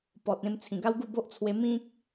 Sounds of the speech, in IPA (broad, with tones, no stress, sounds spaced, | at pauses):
p ɔ˨ t̚ ẽ˧ m t͡sʰ ĩ˨˩ ɡ a˦ w ɡ u˥˧ b o˦ ʔ t͡sʰ w e˧ m ĩ˦ k̚